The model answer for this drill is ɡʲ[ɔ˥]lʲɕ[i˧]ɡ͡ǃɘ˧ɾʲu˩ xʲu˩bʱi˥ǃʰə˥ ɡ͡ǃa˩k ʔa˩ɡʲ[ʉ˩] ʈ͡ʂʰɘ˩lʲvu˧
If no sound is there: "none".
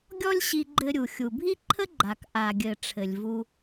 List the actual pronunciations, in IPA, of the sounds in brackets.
ɔ˥, i˧, ɘ˩

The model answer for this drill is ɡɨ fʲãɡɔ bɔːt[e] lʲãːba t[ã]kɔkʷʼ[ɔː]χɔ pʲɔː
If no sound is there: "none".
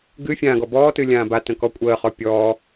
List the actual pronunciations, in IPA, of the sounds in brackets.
ɨ, ə̃, əː

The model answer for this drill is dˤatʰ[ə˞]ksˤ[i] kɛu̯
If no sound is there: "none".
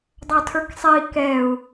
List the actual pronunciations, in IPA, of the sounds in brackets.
ə˞, i

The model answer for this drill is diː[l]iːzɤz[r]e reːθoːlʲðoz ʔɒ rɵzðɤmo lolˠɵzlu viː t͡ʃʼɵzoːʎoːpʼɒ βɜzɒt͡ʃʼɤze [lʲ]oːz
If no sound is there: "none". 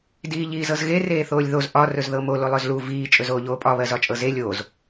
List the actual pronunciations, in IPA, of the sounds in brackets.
ʎ, ɣ, lʲ

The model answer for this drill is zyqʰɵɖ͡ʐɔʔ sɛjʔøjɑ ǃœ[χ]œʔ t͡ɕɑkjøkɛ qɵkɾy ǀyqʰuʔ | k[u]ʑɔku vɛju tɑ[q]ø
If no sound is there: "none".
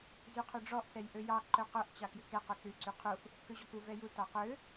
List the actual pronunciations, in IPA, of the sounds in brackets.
q, ø, q

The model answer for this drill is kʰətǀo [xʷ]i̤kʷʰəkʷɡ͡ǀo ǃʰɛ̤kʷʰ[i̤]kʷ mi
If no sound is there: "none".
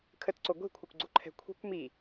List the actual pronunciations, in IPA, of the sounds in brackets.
ɡʷ, i̤

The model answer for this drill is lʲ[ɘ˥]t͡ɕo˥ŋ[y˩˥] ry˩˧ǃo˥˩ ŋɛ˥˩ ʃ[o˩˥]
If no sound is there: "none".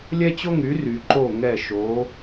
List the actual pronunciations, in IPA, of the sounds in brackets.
ɛ˥, y˩˥, o˩˥

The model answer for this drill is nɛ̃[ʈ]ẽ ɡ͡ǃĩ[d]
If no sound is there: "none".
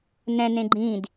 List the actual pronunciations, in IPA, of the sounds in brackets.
n, d

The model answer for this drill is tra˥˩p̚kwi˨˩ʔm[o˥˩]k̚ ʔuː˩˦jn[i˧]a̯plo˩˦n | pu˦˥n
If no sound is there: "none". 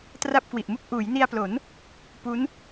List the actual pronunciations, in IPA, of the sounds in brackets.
u˥˩, i˧

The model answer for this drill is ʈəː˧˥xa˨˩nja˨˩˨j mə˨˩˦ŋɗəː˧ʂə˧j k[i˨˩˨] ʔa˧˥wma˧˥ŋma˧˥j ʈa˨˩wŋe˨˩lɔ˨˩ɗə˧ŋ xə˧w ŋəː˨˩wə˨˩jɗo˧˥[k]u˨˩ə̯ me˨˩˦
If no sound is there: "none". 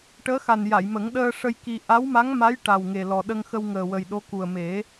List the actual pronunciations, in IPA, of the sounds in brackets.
i˧, k

